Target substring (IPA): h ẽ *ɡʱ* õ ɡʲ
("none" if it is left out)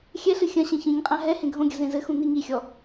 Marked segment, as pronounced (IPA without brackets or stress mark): ɡʱ